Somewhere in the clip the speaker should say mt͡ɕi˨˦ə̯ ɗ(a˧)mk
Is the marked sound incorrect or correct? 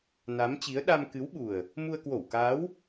correct